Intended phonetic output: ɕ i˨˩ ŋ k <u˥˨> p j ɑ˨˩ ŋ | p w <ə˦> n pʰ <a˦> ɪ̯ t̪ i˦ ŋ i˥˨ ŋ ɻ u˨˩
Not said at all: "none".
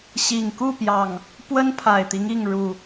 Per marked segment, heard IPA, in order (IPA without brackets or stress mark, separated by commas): u˥˨, ə˦, a˨˩